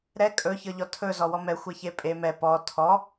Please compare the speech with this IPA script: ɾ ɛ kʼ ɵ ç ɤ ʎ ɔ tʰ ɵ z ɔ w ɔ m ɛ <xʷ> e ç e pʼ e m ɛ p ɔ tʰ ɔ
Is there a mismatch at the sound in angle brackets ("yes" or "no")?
no